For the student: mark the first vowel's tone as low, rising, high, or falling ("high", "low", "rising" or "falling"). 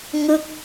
falling